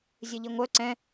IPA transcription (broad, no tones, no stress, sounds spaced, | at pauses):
zʲ ɨ ʎ i ŋʷ œ ǀ ɛ̃